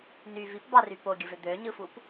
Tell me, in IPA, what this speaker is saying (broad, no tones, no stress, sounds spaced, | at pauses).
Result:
n y v i p b ɑ r y p o ɡʲ ɯ v ø d̪ ø ɲ ɯ f u p